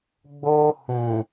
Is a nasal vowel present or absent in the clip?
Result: present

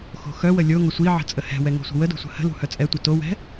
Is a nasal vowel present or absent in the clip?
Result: absent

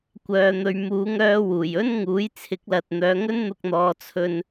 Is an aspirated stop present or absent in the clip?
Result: present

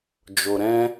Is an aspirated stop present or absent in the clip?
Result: absent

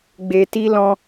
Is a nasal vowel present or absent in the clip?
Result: present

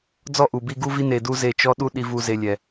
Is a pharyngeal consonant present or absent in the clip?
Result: absent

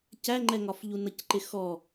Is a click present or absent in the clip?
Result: present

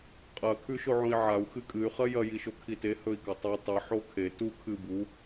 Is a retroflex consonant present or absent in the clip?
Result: absent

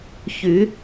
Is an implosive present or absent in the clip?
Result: absent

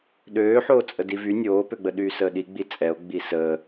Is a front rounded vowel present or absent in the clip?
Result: present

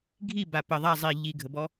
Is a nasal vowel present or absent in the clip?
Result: absent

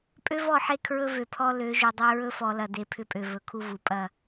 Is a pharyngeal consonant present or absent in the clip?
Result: present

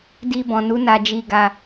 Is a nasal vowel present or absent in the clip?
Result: present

